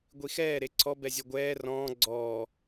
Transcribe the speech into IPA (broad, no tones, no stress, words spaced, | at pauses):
ɡʷixɛː ɾeǀʰɔ bɛzʲɔɡʷɛː rɔ̃ː ɡ͡ǀɔː